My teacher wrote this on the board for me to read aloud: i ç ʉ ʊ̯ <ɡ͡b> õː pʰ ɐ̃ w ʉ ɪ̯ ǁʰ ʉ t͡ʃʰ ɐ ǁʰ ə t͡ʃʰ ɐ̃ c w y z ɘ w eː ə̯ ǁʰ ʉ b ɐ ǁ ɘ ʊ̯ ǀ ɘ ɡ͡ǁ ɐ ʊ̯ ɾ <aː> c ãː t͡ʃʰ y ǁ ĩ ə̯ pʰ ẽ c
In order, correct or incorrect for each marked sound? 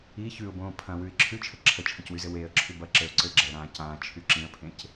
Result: incorrect: b, incorrect: ãː

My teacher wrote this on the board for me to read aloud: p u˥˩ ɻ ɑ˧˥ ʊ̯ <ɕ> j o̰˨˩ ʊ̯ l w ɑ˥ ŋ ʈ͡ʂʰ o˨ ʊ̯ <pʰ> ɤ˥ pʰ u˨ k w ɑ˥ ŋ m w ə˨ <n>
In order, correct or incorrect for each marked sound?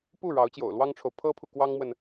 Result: incorrect: t͡ɕ, correct, correct

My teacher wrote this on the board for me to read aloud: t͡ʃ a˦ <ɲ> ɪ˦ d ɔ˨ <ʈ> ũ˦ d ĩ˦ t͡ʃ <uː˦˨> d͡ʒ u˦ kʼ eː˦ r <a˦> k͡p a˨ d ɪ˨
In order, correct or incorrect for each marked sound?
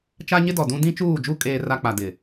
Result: correct, incorrect: d, correct, correct

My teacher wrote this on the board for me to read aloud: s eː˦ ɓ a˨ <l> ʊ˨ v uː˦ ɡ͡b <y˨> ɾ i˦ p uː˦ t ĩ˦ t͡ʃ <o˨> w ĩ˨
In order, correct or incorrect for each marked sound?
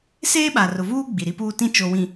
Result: incorrect: r, incorrect: i˨, correct

